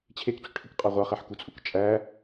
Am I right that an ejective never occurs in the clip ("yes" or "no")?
no